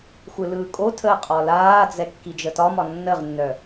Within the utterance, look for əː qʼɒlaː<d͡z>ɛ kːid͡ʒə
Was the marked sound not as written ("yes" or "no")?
no